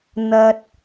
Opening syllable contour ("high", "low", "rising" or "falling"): low